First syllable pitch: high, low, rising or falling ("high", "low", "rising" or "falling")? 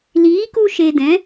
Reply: rising